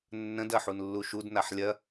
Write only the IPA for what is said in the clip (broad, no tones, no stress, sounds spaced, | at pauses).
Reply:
nː ə̃ d ɐ ħ u n lː u ʃ u d n a ħ lʲ ɐ